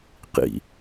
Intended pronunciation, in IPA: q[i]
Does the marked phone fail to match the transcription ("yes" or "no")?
yes